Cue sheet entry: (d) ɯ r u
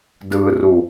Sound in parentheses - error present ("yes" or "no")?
no